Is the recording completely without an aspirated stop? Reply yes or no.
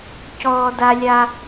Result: yes